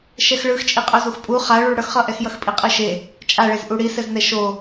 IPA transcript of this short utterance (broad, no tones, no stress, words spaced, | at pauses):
ʃɛxɭɯx t͡ʃʼiqʼozuxpʼu χaɭuɭ ɽʌxχʌʔɛxjʌx pʼiqʼɯʃe | t͡ʃʼaɭez ʔuɽisɛznɛ ʃo